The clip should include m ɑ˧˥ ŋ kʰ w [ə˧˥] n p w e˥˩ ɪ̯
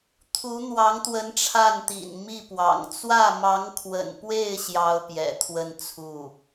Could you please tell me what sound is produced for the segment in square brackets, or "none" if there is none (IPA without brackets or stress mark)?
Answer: ə̰˨˩